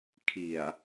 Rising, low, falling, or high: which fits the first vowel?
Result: low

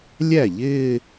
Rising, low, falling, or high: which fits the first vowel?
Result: falling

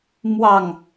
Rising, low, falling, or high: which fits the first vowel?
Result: low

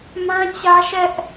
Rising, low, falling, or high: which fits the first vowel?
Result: high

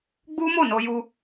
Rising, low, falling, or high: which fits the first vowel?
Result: high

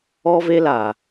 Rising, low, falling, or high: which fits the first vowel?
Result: high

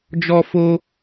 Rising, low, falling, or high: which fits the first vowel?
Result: high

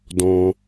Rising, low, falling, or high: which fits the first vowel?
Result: high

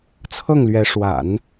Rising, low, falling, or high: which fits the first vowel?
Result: falling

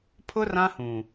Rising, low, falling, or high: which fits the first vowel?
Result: high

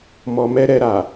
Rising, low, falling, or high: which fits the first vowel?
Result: low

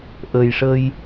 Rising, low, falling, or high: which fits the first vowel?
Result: low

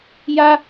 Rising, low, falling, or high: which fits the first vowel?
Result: high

